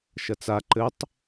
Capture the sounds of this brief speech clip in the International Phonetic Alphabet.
ʃɐt͡sa ǃɘtˤ

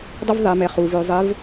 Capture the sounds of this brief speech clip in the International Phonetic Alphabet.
dˤə˥vðˤe˩˧mɛ˩˧χuː˩v ø˩˧zˤɘ˧˥v

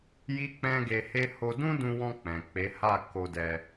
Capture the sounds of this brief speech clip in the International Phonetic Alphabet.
ji˦k͡pɛ̃˦ɡe˧he˦ ho˧dũ˦dũ˧wɔ̃˧ k͡pɛ̃˨k͡pe˨˦ha˦˨ ko˧dɛ˧

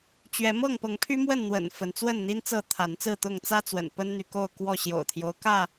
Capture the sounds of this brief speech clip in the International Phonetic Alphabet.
t͡ɕɥɛ˨˦ mɤ˥˨ŋpɤ˨˦ŋpʰy˦mwə˥˨n n̪wə̰˨˩n fə˨˦nt͡swə˥˨nn̪i˦nt͡sɤ˥˨ t̪ʰa˨˦nt͡sɹ̩˥˨t̪ʊ˥˨ŋ t͡sä˦t͡swə̰˨˩n pə˦nn̪y˨ko˥˨ʊ̯ kwɔ˥˨ɕjo̰˨˩ʊ̯t̪ʰjo˦ʊ̯kä˥˨

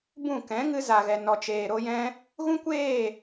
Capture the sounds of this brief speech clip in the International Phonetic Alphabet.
bũ˦˨ kɛ̃˨˦ ŋɨ˧za˨ɣɛ˨ nɔ˨t͡ʃeː˨ɾo˧jɛ̃˧ | ɣũ˦kʷeː˦˨

